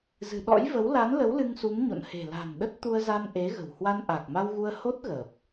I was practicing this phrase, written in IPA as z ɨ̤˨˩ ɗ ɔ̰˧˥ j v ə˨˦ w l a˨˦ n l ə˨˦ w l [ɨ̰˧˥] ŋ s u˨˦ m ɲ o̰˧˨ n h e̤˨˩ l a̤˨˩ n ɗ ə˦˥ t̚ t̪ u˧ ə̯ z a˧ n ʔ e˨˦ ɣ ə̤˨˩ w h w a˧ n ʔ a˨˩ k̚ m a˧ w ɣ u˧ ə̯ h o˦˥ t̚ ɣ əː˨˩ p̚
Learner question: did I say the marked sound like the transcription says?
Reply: no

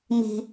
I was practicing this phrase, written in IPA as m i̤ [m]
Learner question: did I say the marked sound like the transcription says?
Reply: no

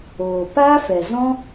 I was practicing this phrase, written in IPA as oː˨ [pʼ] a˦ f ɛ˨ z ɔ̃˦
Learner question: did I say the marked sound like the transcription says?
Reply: no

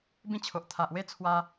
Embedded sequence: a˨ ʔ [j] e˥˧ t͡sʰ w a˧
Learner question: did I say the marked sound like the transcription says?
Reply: no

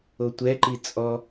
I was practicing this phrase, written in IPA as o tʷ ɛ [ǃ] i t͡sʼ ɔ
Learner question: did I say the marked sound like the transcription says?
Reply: yes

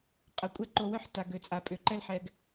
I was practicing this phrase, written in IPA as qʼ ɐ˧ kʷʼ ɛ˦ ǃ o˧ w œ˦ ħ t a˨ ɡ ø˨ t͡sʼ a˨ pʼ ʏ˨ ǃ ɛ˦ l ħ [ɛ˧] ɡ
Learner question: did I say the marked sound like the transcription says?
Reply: yes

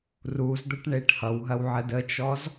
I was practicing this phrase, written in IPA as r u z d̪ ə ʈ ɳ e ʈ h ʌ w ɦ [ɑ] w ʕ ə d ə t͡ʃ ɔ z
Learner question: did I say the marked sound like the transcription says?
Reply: no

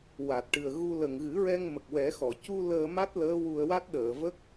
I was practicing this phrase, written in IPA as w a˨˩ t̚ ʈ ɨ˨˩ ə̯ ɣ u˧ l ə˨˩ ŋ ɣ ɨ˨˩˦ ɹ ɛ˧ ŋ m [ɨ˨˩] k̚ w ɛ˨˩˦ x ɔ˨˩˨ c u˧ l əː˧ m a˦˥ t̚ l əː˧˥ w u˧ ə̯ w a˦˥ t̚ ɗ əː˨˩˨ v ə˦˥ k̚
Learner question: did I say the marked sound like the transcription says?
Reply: no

